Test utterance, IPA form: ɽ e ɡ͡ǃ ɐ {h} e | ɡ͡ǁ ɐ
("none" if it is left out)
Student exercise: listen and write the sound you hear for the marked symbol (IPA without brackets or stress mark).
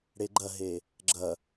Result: ɦ